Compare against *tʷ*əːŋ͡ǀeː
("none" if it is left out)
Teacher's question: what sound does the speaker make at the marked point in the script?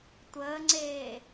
tʷ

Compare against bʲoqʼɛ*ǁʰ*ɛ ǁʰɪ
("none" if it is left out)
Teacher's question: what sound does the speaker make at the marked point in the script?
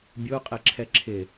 ǁʰ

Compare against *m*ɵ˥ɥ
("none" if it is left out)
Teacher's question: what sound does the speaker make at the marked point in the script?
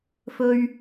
f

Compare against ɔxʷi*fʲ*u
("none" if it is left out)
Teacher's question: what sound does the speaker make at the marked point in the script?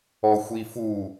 f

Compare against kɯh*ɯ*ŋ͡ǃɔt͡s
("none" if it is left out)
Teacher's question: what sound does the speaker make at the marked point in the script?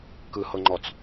ɤ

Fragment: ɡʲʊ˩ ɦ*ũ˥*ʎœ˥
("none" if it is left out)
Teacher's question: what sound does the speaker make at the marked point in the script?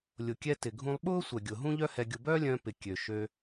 ũ˥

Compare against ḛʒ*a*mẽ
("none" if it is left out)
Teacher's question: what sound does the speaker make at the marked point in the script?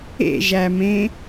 æ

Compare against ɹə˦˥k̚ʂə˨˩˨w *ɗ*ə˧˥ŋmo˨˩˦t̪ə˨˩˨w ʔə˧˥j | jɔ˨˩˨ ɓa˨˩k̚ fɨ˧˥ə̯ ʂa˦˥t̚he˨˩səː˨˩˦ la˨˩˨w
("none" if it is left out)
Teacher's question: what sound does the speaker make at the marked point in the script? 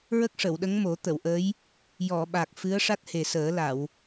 ɗ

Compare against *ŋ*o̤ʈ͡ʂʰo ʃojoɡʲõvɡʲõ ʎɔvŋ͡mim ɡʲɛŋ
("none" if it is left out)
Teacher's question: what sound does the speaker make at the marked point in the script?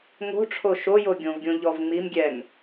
ŋ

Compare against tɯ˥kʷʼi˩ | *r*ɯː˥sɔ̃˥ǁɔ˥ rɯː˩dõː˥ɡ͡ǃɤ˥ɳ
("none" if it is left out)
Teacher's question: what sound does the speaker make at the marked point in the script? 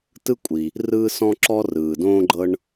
r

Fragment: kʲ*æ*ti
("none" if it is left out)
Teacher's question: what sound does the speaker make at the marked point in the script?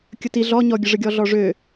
ə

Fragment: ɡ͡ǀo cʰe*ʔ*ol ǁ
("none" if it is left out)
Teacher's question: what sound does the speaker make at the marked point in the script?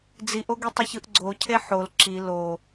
ħ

